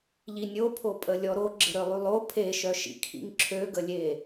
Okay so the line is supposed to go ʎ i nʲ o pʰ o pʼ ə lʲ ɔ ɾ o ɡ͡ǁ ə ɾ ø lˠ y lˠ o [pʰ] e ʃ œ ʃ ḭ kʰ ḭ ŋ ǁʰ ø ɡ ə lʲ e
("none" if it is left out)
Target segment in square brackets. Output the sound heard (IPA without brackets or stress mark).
pʰ